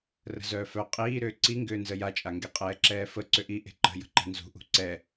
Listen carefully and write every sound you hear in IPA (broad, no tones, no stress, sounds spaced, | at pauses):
r ə̤ z œː f œ qʼ iː ɾ ʏː ǀ i ŋ ɡ ʏː n z ə j a t͡ʃʼ a ŋ ɡ e qʼ ɛː ǁ ɛː f ə ǀ ʏ ʔ i ʔ e̤ ǃ ə̤ j ə̤ ǃ ɛ̤ n z ṳ ʔ ṳ ǀ ɛ